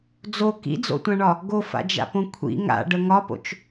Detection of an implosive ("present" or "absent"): absent